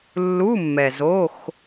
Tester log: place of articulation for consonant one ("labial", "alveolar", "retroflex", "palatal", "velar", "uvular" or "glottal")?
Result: alveolar